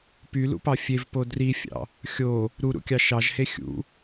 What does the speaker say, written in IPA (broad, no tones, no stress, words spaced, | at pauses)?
pylṵpɑ fʲevpo drifʲɑ̰ | xʲo | ɾuɾṵkʲɑ ʃɑʒhe xʲṵ